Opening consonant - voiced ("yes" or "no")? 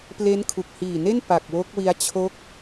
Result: no